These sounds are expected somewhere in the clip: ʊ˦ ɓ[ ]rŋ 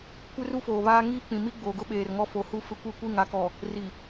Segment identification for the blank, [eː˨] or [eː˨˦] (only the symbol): eː˨